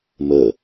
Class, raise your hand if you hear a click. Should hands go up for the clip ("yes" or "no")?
no